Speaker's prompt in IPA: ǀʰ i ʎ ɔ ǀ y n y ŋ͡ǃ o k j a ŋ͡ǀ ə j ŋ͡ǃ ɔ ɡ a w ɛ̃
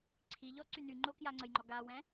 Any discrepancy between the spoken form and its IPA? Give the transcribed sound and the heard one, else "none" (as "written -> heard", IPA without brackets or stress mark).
none